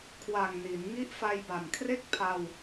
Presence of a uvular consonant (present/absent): absent